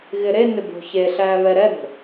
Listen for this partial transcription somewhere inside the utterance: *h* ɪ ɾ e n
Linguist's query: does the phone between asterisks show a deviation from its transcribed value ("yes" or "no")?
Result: yes